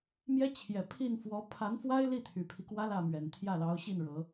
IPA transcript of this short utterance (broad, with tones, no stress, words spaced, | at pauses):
mjɛ˥t͡ɕʰjɛ˨˩ pʰi˥˩nfwɔ˧˥ pʰa˧˥nfwa˥ɪ̯li˥˩ t̪ʰy˨˩pʰi˦kwä˥ lä˥˩mɥɛ˨˩nt̪ʰjä˥˩ lɑ˧˥ʊ̯ɕi˥˩nɻɤ˨˩˦